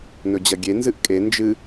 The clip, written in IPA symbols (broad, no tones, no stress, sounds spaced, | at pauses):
n ɵ d͡ʑ ɐ ɡʲ e n z ɨ ʔ kʼ e n d͡ʒ ɨ